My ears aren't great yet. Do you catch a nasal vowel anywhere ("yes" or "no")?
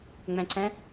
yes